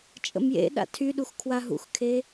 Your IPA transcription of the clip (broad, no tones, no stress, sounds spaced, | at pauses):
t͡ʃʼ ə̰ m j ḛ ɗ a̰ tʰ y ɗ u x kʰ w a ɦ ṵ x kʰ e